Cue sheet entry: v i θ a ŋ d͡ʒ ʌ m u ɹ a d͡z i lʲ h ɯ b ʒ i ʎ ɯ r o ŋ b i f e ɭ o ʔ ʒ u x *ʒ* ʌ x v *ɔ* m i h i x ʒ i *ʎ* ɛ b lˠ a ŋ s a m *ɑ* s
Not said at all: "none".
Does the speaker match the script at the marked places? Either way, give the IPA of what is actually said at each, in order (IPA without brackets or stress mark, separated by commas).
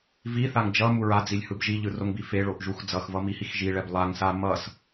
d͡z, ʌ, ɭ, ʌ